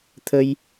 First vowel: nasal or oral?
oral